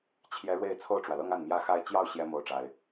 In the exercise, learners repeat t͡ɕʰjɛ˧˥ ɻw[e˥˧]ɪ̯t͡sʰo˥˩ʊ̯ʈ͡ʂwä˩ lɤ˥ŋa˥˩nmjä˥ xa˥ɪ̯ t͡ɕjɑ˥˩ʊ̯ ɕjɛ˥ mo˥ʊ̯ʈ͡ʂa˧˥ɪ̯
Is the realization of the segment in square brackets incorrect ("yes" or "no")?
no